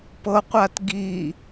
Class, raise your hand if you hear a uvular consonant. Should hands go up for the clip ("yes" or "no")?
yes